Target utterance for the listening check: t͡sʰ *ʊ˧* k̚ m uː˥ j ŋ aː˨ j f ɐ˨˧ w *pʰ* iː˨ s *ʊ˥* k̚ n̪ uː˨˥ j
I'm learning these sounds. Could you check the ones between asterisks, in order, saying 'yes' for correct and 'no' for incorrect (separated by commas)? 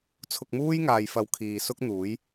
yes, no, yes